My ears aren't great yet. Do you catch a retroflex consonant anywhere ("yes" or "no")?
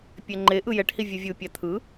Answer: yes